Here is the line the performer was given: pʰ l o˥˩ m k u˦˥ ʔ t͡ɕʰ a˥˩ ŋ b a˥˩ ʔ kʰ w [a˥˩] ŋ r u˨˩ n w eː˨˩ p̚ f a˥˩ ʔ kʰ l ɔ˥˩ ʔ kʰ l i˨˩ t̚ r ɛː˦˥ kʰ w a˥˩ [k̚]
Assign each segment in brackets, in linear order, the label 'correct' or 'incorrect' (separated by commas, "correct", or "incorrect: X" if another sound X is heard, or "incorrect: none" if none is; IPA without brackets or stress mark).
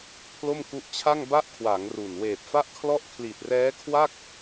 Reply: incorrect: a˩˦, correct